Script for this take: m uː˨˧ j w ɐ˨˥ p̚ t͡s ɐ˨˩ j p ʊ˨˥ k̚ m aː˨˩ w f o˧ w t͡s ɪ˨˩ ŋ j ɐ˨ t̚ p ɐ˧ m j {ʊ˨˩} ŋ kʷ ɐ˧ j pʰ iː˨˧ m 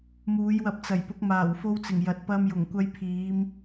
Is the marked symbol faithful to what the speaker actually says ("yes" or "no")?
yes